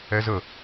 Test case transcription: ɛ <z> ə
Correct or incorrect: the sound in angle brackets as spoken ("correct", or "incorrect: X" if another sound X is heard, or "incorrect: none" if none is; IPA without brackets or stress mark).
correct